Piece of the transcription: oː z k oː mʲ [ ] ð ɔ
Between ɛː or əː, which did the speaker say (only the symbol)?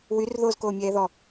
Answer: ɛː